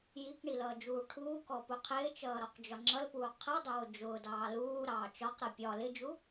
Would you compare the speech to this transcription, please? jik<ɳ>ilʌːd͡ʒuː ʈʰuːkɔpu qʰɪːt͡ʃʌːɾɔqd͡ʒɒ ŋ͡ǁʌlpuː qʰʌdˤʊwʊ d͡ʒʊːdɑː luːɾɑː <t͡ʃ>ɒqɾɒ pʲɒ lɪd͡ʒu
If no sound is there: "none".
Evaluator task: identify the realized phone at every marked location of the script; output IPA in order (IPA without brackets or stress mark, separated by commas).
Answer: ɳ, t͡ʃ